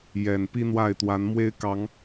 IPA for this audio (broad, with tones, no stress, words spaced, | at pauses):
jɛ˨˩n pi˦n̪wa˥˨ɪ̯ t̪wa˨˦n mwe˦ɪ̯kɑ˨˦ŋ